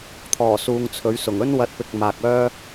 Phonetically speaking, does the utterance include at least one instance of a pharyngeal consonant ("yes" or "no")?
no